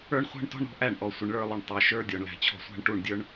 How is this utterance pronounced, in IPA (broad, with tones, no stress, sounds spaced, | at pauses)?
ə˞˦ ɳ χʷ æ̤˦ ɳ t ɔ̤˦ ɳ ɾ ɔ̤˧ ʔ æ˦˨ ɳ ʔ ɔ˨ sʷ ɪ˨ ɳ ɭ ə˞˧ lˠ ʊ˨ ɳ tˤ ɛ˨ ʃ ə˞˦ dʲ ɔ˨ ɳ l æ̤˨ t͡ɕʰ ɔ̤˧ sʷ æ̤˦ ɳ ʈ u˦˨ ɳ dʲ ə˞˦ ɳ